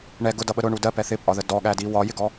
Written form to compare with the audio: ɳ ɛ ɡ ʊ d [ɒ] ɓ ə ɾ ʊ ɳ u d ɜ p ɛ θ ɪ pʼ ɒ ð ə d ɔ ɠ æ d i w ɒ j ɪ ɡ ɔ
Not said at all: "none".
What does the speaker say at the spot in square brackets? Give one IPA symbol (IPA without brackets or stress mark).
ʌ